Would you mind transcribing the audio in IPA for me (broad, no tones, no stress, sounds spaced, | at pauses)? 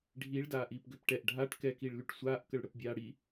ɖʱ i ɭ d aː ʔ iː p ɡ ø p ʈ ɛ ʔ ɖʱ a ʈ k ɛ k i ɭ l y ʈ sʷ aː ʔ k ə ɭ ɽ ə p bʲ aː ɽ i